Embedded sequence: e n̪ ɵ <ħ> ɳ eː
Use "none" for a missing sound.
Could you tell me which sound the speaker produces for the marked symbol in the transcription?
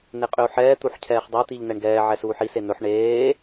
ħ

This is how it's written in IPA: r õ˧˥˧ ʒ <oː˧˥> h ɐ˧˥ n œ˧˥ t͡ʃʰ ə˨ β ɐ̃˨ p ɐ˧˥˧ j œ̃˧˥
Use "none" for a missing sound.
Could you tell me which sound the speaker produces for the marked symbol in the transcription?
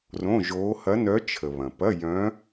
oː˧˥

